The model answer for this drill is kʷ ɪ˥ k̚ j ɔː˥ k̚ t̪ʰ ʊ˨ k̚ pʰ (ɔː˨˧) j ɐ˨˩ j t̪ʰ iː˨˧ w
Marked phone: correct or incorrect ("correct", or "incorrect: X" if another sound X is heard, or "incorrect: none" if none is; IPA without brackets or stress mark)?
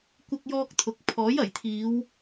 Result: incorrect: ɔː˨˥